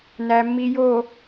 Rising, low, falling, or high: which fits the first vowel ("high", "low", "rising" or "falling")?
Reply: low